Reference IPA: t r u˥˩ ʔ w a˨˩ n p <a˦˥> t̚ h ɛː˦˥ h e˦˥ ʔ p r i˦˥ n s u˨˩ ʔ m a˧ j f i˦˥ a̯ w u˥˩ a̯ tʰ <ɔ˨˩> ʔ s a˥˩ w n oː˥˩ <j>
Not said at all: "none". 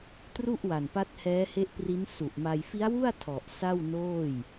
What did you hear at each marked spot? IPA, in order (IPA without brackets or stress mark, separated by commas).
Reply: a˦˥, ɔ˨˩, j